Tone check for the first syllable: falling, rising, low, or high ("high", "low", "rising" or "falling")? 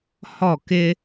falling